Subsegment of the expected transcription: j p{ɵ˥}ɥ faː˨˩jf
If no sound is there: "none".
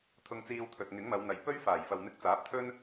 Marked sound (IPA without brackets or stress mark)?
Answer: ɵ˥